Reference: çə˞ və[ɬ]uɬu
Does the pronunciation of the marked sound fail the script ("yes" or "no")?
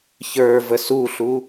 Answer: yes